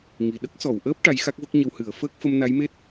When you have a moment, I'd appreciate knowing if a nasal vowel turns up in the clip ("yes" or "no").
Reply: no